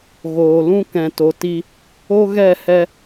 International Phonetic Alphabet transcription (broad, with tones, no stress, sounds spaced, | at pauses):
ɣ oː˨ l ũ˦ k ɛ̃˨ t o˨ t i˧ | o˦ ɣ ɛ˦˨ h ɛ˧